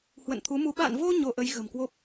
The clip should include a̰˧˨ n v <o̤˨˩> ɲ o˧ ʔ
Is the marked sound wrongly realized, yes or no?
yes